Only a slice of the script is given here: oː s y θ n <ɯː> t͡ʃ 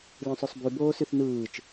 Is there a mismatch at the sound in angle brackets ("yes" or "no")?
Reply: no